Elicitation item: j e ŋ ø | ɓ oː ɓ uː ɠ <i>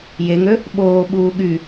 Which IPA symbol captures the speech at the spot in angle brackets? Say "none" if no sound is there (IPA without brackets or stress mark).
y